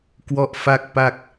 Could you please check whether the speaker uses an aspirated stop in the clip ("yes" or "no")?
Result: no